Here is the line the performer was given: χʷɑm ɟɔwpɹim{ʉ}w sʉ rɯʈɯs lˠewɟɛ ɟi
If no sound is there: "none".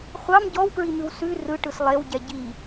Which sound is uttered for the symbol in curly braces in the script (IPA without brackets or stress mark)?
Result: ʉ